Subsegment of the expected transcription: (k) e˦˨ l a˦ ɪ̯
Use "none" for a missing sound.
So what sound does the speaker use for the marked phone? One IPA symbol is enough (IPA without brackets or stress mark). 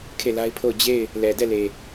kʰ